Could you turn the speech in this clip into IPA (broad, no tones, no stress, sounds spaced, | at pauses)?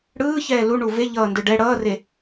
ɽ ɯː ç ɛː l u ɳ u v e ʎ ʌː n d ɯ ɖ ɛ ɽ ʌː r e